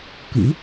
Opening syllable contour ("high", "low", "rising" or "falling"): rising